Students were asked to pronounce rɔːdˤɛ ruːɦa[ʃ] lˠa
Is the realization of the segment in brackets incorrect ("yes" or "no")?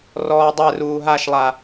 no